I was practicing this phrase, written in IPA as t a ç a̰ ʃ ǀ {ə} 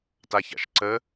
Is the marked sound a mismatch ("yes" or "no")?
no